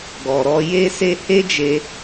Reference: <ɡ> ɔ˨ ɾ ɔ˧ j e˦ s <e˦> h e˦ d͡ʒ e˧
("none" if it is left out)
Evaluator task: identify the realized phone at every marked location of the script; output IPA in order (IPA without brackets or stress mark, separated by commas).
ɡ, e˦